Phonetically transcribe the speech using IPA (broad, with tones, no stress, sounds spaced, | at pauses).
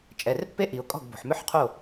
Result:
t͡ʃʼ ɛ˩˧˩ r pː e˥ ʔ i˩ ʊ̯ kʼ ɔ̤˥˩ ɡ b o̤˩ ħ m ʏ˥ ħ qʰ o˥˩